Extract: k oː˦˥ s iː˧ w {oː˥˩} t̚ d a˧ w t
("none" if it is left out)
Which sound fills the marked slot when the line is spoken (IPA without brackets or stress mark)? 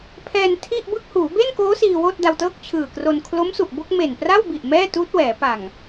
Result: oː˥˩